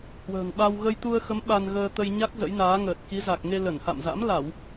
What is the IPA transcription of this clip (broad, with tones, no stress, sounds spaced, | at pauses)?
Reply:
h w ə̤ː˨˩ ŋ ɓ a˧ w ɣ ə˧ j t̪ u˧ ə̯ x ə˨˦ m ɓ a˧ n ɣ əː˧ t̪ ə˧ j ɲ a˦˥ k̚ z ə̰˧˥ j n aː˨˦ ŋ əː˨˩ t̚ k i˨˦ z a˨˩ k̚ ŋ e˧ l ə˧˩ n h a̰˧˨ m z a̰˧˥ m l a˧˩˨ w